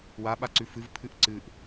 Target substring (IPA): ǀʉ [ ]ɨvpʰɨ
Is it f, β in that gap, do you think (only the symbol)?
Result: f